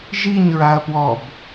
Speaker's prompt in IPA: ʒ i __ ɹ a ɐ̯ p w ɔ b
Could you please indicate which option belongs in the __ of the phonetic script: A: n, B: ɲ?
B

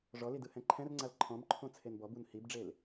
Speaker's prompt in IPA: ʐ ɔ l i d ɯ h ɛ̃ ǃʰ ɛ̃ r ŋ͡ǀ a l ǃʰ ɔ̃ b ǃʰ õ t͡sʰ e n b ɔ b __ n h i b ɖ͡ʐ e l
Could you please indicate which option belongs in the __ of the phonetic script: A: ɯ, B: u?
B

